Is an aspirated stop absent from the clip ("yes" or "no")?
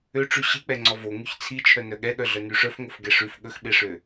no